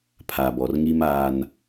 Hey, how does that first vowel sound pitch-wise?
low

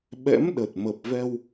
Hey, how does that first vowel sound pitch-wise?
rising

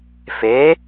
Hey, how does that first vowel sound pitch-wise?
rising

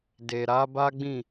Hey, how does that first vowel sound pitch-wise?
low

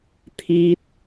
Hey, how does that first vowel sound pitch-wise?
high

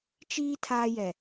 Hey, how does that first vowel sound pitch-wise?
high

